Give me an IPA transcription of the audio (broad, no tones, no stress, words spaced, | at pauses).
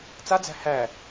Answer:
t͡sad͡zæ̤ hæ